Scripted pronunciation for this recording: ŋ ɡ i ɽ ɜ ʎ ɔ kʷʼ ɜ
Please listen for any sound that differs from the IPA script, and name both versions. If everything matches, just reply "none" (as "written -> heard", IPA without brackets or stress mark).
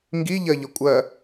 ɽ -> ʎ